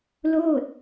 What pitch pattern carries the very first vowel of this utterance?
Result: falling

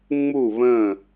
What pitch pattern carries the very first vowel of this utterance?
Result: falling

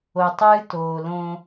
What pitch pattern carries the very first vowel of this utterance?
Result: low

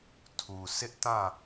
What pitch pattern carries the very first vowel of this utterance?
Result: low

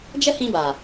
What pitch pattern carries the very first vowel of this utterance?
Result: high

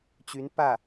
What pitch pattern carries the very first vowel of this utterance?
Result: rising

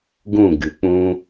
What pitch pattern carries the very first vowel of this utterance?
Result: falling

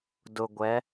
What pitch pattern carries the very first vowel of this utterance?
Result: low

